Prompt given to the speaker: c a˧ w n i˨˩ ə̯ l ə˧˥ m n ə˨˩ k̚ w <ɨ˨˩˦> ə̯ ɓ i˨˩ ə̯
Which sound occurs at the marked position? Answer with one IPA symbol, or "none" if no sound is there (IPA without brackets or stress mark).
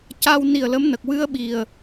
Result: ɨ˧